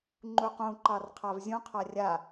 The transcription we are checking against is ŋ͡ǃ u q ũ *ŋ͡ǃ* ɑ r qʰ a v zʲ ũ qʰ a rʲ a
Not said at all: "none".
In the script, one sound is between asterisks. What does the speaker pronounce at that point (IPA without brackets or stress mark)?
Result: ǃ